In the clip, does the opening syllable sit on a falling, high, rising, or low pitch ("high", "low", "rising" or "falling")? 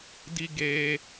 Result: high